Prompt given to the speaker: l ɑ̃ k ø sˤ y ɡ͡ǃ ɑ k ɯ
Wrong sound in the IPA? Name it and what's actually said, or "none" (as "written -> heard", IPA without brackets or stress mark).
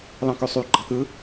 none